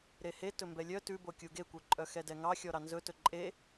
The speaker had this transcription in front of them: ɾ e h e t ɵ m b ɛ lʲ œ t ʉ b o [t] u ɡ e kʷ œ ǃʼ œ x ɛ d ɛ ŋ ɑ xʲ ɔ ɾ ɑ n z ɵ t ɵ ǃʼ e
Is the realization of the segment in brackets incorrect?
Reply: yes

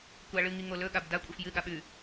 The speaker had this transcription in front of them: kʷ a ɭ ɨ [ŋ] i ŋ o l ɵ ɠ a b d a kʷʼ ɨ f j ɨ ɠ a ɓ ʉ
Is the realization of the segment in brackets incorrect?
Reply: no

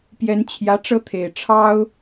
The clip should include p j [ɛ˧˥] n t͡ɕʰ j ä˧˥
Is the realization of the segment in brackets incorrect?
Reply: no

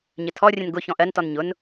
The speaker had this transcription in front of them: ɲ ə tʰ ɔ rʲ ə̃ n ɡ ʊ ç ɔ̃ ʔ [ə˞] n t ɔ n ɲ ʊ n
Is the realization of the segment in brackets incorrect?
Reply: yes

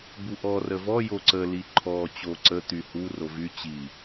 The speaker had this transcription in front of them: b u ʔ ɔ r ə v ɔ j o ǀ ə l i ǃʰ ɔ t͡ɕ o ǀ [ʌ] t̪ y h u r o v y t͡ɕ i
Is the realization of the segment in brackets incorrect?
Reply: yes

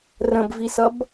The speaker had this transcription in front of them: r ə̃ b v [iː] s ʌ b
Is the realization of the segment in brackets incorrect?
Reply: yes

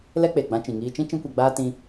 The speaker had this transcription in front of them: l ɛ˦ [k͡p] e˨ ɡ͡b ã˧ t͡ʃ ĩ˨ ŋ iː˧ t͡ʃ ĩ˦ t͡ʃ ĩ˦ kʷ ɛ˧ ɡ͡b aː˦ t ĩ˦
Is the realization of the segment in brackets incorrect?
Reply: no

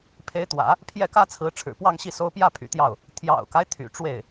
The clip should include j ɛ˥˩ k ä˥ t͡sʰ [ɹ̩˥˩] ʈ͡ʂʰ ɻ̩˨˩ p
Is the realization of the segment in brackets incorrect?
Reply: yes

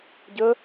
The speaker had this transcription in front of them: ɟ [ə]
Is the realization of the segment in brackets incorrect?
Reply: no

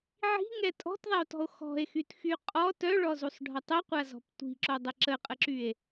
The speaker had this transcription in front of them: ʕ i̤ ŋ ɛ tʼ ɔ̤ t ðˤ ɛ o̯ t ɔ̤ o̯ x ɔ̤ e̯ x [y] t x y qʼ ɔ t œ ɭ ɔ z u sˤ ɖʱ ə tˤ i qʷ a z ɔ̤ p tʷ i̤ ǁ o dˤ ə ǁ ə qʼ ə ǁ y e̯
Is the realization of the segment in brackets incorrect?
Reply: no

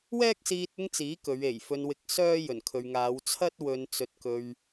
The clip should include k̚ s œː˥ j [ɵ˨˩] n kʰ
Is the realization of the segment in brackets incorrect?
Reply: no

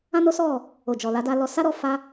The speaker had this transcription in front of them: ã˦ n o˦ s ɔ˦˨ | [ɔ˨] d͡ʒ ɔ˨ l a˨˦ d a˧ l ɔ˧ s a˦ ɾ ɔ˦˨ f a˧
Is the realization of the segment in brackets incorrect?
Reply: yes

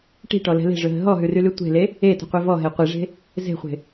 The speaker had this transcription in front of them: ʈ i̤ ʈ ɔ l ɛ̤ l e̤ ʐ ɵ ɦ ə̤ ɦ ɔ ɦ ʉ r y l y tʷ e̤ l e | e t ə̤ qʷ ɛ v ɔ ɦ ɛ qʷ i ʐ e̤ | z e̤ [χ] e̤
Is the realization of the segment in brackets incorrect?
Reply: yes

